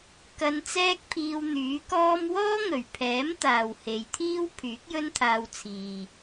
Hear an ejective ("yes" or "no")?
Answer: no